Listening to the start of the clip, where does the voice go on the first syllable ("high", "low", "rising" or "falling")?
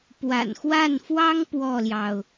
low